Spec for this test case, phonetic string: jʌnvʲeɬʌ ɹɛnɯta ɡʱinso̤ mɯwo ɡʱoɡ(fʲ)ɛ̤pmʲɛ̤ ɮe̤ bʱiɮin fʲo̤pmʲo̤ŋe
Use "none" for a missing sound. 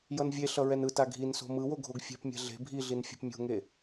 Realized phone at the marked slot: fʲ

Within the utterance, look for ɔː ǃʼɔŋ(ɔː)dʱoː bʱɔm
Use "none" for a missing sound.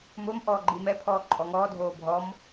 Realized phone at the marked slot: ɔː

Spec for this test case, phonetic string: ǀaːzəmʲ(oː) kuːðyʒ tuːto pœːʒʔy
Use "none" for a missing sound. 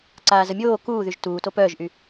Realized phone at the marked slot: oː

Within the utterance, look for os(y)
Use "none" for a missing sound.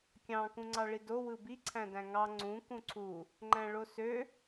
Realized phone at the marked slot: ø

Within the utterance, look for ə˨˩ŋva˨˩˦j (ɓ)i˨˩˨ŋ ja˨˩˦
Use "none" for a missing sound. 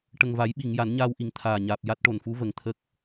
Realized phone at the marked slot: ɓ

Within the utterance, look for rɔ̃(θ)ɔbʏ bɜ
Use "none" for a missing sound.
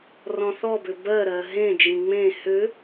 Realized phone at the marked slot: θ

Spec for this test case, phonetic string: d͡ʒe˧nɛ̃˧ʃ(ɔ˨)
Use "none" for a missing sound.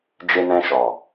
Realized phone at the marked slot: ɔ˨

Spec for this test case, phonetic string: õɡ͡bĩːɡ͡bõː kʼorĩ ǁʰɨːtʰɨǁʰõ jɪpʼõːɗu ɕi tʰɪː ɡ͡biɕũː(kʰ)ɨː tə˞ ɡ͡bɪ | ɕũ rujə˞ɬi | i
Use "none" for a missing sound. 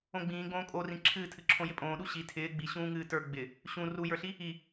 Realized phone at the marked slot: ŋ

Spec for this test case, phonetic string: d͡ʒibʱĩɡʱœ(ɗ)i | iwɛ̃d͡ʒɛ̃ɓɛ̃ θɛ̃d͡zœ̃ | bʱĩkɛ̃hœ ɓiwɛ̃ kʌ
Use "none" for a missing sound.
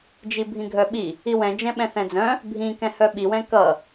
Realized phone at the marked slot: ɓ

